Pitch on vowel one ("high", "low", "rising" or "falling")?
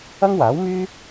high